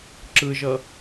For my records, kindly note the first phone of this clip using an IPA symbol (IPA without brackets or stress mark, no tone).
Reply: ǁ